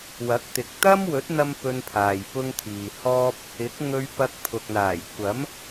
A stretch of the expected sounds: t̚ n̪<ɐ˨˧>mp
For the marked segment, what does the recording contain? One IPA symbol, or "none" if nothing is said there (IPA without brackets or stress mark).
ɐ˥